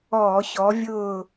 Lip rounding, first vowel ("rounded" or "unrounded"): rounded